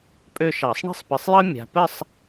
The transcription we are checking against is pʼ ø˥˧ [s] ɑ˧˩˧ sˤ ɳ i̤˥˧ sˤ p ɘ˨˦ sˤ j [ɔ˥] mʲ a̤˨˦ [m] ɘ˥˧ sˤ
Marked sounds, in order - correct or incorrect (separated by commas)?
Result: incorrect, incorrect, incorrect